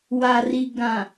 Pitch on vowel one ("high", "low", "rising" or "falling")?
low